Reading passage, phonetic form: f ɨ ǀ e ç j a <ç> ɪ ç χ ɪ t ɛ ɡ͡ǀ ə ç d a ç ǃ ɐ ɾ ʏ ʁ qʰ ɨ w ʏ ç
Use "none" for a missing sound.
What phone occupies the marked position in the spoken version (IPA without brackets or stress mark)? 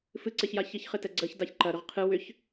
ç